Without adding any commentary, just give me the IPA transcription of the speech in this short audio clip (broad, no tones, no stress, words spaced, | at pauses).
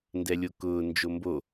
ndɛlʲokʊː nd͡ʒombo